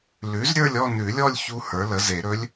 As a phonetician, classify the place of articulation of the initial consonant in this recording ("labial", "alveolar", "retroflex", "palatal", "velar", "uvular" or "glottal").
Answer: alveolar